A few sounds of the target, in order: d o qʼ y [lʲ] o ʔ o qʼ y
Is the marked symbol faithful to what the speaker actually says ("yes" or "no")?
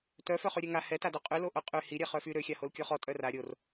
no